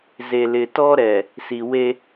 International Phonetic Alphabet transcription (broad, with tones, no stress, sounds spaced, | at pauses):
z e˨ l ɪ˨ t ɔ˦ ɾ ɛ˨ | s i˨ w e˦